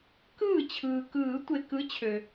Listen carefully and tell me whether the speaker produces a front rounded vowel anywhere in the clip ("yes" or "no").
yes